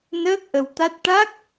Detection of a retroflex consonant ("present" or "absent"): present